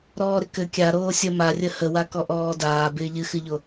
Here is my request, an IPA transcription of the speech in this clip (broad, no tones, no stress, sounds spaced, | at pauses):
ɾ ɔː ɾ ɪ k ɘ kʲ a ɾ oː sʲ ə m a rʲ ə h ə w a k ɔ ʔ ɔː d aː b ɪː ʎ ɨ x ɨ ʎ o